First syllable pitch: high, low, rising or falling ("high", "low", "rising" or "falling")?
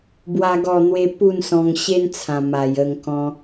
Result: high